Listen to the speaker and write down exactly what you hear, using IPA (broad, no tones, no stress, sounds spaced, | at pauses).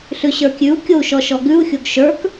ɬ ʉ ɕ ə˞ kʲ ʉ u̯ kʲ o u̯ ʃ ɔ ʃ ɔ ɡ ʉ u̯ xʲ o ɡ ʃ ə˞ k